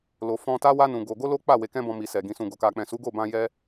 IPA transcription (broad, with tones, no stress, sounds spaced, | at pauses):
l o˨ f ɔ̃˧ t a˦ w a˦ n ũ˧ ɡ o˧ ɡ o˦ l o˦ k͡p a˦˨ w e˨ k ɛ̃˧ b ɔ̃˧ m i˨ s ɛ˨ ɡ ĩ˨ s ũ˨ ɡ o˨ k a˨ k͡p ɛ̃˨ s u˨˦ ɡ o˦˨ b ã˧ j ɛ˦